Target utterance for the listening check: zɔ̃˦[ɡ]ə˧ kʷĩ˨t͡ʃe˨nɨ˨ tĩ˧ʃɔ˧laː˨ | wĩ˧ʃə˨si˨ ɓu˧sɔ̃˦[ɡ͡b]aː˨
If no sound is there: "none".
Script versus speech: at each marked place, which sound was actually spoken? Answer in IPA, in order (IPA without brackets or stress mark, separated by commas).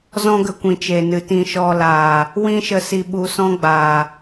ɡ, ɡ͡b